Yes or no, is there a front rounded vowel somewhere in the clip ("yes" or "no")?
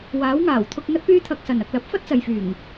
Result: yes